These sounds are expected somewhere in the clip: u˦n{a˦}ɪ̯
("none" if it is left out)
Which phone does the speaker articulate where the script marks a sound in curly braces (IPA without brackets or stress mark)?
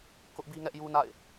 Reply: a̰˦˨